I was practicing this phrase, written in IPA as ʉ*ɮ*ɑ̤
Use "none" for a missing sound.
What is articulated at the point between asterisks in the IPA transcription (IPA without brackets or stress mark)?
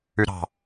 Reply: ɾ